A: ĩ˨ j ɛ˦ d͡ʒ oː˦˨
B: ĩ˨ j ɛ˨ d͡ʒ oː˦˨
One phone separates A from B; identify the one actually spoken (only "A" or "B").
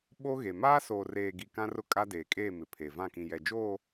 B